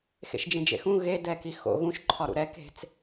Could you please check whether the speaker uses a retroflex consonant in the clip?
no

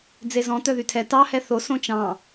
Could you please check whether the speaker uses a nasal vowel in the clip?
yes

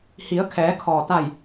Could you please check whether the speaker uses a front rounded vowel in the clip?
no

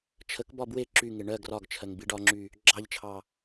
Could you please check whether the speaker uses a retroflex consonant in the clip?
yes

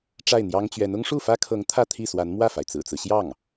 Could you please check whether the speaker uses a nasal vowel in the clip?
no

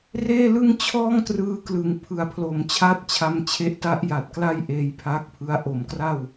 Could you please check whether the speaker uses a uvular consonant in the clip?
no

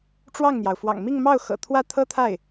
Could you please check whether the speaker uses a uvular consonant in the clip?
no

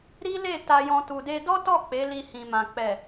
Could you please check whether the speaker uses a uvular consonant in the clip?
no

